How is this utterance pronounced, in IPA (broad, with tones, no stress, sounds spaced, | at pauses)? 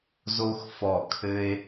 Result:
z o˧ x f ɔ˨˩ kʰ ɘ˧ e̯